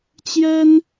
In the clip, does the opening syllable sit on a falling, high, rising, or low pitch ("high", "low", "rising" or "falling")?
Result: high